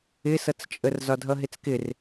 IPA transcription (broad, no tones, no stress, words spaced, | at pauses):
ɪsʌt͡st͡ʃʼər zɒdʱʌɦɪt͡skɪr